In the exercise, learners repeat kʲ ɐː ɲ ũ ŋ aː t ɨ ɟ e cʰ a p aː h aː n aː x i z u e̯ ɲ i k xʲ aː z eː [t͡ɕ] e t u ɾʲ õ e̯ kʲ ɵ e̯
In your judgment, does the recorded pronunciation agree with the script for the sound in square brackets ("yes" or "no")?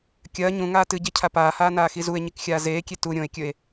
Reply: no